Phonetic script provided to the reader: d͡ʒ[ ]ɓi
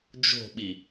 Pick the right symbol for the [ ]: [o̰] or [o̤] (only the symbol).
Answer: o̤